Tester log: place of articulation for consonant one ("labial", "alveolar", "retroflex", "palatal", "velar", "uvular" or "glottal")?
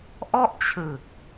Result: glottal